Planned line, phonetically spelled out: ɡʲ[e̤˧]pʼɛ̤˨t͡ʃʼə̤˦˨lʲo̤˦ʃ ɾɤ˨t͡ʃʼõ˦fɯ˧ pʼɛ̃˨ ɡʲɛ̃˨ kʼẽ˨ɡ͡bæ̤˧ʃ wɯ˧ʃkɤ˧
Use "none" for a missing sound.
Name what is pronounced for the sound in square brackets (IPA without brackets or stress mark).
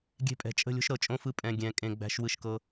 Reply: e̤˧